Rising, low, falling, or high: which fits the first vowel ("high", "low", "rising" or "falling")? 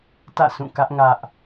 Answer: falling